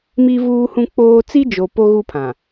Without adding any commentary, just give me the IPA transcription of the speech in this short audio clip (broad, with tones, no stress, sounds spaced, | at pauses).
m i˦ v uː˦ h ũ˦ k͡p oː˦ t͡s i˦ d͡ʒ o˨ p o˦ ɣ u˦ pʰ ã˨